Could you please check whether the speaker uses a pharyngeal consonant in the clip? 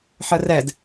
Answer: yes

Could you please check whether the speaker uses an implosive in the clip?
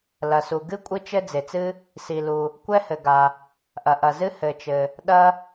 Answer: yes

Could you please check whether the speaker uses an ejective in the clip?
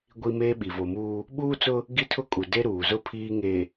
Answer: yes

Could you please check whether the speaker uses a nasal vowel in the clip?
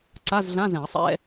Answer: yes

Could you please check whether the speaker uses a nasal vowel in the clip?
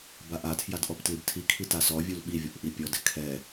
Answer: no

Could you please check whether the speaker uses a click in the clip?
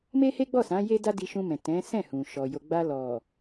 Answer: no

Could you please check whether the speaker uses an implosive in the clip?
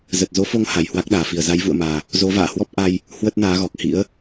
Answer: yes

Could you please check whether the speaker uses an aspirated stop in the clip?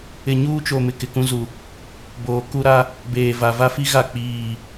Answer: no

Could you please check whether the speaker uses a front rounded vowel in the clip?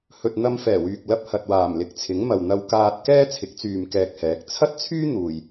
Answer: yes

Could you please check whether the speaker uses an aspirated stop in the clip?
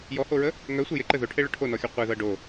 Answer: yes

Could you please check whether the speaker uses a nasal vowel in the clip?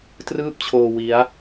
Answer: no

